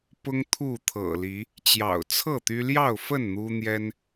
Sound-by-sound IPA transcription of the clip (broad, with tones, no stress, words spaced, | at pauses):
pʊ˦ŋ t̪ʰu˥˨t̪ʰɤ̰˨˩li˨˦ | t͡ɕjɑ̰˨˩ʊ̯t͡sʰɤ˥˨ t̪y˦ ljɑ˥˨ʊ̯fə˥˨n n̪u˦n̪jɛ˦n